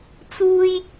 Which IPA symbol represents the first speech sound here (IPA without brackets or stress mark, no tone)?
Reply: t͡s